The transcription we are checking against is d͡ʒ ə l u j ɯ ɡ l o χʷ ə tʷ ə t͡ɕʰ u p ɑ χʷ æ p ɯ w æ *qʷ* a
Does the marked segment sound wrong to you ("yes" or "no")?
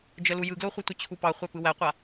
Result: no